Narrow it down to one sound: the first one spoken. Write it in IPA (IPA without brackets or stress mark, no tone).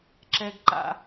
ǁ